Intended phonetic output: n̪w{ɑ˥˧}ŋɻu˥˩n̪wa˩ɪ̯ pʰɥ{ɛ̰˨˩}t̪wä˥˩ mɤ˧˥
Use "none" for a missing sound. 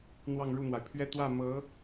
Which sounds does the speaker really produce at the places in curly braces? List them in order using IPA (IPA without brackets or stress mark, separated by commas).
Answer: ɑ˥˧, ɛ˥˧